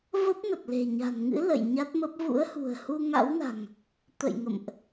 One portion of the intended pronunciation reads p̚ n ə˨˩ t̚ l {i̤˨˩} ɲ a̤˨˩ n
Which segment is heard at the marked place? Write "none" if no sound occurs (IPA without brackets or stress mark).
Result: e̤˨˩